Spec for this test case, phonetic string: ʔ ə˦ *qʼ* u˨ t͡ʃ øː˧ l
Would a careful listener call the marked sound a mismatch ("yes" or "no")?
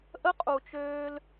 no